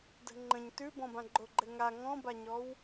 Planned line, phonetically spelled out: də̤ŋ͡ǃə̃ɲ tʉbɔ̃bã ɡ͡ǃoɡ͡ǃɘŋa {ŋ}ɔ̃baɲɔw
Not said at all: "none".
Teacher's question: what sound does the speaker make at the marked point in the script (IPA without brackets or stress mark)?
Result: ŋ